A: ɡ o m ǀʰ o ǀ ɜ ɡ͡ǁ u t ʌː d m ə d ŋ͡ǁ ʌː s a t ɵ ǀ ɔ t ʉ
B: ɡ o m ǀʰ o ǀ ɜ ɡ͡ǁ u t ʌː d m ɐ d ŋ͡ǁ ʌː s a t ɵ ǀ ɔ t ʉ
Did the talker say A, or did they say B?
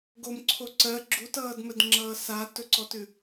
A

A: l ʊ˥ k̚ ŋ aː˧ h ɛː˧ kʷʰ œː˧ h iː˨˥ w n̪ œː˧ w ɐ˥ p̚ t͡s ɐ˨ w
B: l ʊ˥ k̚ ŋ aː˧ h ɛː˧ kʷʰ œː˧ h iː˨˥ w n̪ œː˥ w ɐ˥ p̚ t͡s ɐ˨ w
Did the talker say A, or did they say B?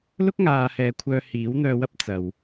A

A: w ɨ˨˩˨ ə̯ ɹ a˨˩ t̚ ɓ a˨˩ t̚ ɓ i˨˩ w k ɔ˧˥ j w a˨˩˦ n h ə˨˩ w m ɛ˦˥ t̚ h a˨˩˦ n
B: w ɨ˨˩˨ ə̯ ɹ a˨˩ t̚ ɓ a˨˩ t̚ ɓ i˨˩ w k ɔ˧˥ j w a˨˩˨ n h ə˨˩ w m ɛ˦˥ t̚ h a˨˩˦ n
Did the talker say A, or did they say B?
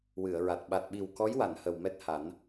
B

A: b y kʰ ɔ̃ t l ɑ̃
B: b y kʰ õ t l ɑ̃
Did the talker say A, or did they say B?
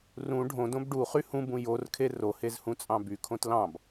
B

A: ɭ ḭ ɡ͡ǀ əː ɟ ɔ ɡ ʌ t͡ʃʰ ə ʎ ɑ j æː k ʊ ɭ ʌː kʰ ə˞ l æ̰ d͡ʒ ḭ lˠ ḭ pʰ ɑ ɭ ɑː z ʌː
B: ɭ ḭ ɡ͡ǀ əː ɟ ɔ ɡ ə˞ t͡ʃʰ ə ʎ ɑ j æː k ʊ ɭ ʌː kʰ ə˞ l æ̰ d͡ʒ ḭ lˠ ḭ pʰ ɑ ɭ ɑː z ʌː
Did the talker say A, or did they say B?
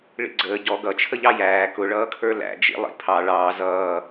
A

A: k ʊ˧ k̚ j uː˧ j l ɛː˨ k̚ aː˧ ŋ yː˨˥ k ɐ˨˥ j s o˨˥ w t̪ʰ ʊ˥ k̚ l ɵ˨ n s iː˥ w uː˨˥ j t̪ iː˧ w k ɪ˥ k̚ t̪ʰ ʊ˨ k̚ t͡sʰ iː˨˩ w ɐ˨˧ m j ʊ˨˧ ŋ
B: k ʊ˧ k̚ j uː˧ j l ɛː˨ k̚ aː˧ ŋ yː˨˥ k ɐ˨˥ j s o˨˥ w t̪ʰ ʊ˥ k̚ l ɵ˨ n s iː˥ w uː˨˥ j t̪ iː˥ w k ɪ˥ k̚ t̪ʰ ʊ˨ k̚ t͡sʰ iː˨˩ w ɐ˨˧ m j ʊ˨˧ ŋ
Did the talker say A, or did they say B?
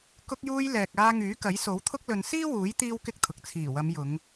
B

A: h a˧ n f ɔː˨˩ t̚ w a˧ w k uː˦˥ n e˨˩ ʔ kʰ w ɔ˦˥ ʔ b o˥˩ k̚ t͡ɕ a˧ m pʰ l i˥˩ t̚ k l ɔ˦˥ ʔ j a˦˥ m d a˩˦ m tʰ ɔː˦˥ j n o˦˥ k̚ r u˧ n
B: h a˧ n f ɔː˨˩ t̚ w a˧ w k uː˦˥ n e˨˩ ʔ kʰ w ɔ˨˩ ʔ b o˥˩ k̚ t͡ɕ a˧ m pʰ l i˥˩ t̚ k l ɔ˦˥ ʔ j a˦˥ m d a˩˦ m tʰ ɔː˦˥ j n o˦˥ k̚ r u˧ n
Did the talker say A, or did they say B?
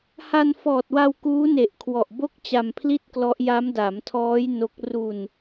B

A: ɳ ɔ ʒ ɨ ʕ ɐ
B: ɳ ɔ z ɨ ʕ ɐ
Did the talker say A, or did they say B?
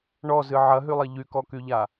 B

